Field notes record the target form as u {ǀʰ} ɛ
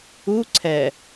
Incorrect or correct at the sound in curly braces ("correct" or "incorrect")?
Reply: correct